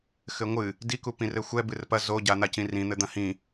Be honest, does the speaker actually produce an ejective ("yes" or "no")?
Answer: no